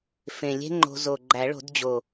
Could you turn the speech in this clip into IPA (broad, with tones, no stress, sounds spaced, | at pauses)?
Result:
f ẽ˨˩ lʲ e̤˥ ŋ͡ǃ o̤˧ z o˨˩ ɡ͡ǃ æ˨˩˦ ɭ o̤˨˩˦ d d͡ʑ o˨˩